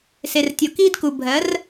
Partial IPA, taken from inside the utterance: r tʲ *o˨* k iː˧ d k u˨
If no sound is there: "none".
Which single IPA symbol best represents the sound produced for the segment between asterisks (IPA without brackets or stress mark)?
o˨